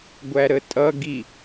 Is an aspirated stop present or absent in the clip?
absent